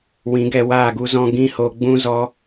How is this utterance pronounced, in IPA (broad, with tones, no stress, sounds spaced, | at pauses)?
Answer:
w ĩ˨˦ ɡ ɛ˧ w aː˦˨ ɡ u˦ z ɔ̃˦ ɡ ĩ˦ h o˧ ɡ͡b ũ˦ z ɔ˦